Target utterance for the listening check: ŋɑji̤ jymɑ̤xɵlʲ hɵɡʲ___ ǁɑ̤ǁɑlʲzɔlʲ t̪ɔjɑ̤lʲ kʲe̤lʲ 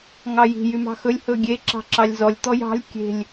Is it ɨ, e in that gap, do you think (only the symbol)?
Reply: e